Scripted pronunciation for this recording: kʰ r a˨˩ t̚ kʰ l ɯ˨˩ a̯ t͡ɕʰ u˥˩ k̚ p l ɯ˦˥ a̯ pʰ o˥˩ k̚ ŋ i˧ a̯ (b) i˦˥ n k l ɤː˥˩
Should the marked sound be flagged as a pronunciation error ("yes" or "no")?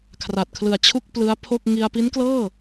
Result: yes